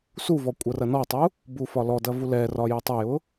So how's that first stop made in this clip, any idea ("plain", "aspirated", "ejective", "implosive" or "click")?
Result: ejective